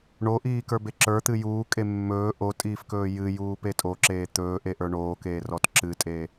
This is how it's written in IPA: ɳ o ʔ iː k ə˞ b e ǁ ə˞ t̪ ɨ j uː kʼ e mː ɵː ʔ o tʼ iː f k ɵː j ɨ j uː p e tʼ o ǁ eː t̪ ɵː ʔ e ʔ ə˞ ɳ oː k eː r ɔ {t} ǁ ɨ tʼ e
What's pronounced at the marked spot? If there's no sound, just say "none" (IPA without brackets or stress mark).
t